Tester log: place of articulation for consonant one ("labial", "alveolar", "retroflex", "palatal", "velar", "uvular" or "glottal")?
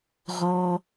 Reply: uvular